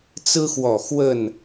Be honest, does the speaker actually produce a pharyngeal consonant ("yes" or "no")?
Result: no